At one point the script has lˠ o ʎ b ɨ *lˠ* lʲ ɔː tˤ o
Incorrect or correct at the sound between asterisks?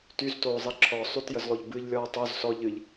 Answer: incorrect: ʎ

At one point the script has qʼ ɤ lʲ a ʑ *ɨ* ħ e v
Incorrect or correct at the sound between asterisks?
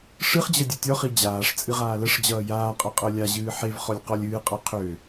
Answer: incorrect: ɨː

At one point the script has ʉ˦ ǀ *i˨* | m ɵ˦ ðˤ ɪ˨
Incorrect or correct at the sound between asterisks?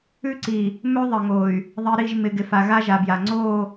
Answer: correct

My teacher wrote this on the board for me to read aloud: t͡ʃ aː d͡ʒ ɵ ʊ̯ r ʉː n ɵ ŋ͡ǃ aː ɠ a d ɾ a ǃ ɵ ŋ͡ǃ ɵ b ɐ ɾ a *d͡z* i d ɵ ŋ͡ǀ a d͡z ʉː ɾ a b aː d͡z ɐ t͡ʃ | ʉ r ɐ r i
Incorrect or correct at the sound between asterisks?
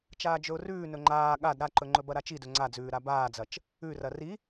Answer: incorrect: t͡ʃ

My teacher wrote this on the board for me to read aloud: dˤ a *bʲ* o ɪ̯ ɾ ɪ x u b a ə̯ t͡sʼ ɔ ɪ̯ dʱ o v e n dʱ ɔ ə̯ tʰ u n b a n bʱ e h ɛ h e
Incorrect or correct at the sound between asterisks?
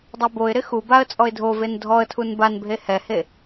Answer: incorrect: b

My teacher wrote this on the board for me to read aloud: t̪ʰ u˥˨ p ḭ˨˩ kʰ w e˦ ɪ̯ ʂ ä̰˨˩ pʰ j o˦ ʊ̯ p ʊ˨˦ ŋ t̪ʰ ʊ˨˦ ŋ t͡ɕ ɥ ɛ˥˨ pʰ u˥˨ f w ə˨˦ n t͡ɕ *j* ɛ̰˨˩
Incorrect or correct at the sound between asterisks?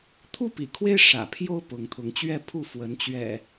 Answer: incorrect: ɥ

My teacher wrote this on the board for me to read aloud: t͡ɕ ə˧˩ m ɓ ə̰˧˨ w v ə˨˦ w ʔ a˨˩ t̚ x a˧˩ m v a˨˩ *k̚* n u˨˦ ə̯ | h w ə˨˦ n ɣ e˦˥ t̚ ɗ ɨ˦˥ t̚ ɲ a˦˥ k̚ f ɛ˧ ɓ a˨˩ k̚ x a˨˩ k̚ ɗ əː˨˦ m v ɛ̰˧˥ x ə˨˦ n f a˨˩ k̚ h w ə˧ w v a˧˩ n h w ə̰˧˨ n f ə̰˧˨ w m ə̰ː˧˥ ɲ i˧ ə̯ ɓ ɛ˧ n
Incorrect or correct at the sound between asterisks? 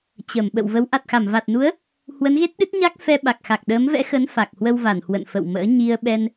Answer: incorrect: t̚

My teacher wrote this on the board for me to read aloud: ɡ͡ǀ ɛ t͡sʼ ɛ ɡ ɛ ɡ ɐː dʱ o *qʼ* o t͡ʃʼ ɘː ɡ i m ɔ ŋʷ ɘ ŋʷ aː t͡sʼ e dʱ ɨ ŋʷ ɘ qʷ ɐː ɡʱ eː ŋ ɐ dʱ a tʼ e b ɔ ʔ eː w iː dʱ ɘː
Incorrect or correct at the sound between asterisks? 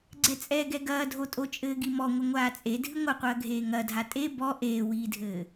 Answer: incorrect: tʼ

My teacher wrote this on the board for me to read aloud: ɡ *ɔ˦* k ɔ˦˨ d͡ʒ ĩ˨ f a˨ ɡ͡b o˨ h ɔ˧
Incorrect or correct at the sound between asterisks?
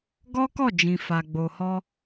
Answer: correct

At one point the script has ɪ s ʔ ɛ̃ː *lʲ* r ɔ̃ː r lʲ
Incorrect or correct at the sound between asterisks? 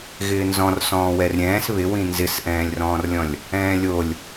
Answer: correct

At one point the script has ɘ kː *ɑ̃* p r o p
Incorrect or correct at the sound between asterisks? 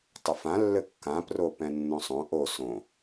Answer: incorrect: ã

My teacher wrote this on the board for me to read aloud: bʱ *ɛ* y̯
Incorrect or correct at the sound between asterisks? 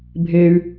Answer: incorrect: e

